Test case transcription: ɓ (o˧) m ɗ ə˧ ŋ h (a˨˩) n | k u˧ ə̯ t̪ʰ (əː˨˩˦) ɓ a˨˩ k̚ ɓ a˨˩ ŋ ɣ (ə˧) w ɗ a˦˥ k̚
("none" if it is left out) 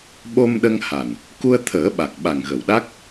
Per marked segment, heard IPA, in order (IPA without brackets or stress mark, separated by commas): o˧, a˨˩, əː˨˩˦, ə˨˩